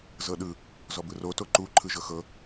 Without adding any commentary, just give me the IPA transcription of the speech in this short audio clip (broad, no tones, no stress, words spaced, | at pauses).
zɤɗɯ | zɔbɯro toǃu ǃʰɯʒɤxɤ